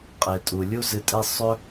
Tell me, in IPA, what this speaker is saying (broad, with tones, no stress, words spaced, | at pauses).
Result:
qʼe˩tʼu˩ lʲu˥zɨ˧tʼe˥ sˤɵ˥